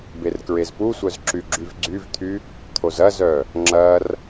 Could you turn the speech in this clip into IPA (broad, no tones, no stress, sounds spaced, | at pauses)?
b e r k ɹ e z p u sʷ œ z ǁ y ɡ͡ǁ y v ɡ͡ǀ y v t̪ʰ y | t̪ʰ o z ɐ z œ | ŋ͡ǁ ɐ r